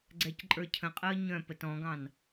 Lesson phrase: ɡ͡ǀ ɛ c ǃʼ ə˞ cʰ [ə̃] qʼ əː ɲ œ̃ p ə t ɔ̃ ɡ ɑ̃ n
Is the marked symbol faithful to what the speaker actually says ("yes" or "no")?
yes